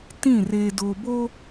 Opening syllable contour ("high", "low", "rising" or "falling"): falling